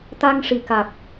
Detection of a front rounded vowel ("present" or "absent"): absent